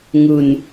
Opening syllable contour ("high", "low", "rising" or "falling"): low